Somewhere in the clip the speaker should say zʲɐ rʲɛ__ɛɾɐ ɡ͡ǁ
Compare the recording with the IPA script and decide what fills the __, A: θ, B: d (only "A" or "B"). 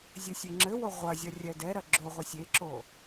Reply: B